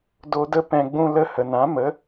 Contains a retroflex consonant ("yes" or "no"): no